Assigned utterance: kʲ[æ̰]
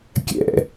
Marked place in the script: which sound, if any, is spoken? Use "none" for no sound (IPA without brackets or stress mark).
ɛ̰